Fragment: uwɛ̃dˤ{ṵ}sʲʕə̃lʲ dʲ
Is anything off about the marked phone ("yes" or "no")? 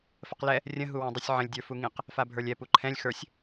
yes